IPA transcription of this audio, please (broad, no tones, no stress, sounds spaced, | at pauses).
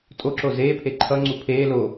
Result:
tʼ o ǁ o z eː pʰ e ǃʰ ʌ ŋ͡ǀ u pʰ eː l o